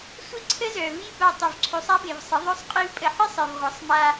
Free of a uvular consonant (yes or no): no